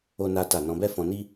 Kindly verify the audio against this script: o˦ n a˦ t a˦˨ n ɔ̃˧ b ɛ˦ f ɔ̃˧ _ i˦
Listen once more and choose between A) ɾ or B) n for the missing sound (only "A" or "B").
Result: B